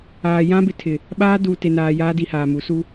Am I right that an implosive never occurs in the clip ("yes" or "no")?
no